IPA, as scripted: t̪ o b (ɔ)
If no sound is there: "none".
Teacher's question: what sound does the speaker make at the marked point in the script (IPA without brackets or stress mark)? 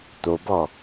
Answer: ɔ